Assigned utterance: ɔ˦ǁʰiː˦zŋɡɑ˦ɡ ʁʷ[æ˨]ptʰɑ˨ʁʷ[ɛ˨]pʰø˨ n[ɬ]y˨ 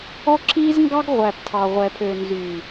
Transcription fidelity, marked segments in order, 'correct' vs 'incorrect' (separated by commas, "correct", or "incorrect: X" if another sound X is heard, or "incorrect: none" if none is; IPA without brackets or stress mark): correct, correct, incorrect: z